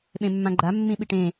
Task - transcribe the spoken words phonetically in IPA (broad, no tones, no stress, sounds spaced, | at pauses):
ɓ ẽ mː ã ɡ͡ǃ a mː ĩ ɓ i ʈ ẽ